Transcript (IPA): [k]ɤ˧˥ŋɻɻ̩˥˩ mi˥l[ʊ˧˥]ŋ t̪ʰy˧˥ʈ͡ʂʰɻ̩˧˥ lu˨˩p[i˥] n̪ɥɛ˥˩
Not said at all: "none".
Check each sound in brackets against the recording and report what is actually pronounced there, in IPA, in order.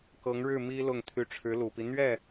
k, ʊ˥˩, i˦

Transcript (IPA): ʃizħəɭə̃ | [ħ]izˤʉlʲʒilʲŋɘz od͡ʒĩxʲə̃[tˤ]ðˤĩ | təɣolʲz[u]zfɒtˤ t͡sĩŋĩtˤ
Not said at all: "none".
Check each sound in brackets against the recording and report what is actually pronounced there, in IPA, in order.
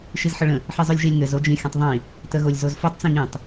ħ, tˤ, o

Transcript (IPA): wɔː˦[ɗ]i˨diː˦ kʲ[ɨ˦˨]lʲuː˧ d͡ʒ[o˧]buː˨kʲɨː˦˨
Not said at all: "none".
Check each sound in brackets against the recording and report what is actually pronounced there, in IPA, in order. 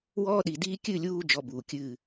ɗ, ɨ˦˨, ɔ˧

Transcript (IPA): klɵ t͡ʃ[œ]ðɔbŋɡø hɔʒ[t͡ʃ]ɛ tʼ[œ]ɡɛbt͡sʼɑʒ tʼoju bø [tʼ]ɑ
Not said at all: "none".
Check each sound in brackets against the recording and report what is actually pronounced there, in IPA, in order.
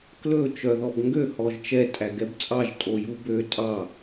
œ, t͡ʃ, æ, tʼ

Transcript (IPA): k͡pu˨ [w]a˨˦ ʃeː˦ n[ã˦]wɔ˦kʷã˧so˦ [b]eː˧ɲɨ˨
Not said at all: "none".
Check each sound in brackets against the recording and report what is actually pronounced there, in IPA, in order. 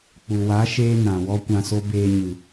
w, ã˨, b

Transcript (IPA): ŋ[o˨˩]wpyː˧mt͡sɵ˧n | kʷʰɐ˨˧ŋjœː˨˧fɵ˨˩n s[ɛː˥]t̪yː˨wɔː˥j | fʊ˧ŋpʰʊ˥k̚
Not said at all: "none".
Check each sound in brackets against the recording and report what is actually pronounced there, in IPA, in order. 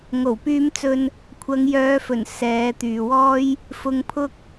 o˨˩, ɛː˨˧

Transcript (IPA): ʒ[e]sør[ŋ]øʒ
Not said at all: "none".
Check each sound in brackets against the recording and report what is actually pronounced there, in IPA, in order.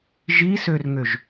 i, ŋ

